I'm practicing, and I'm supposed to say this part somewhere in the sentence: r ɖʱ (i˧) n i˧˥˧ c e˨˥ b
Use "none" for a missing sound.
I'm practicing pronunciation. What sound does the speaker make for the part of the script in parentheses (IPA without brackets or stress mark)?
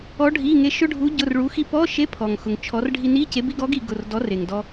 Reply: i˧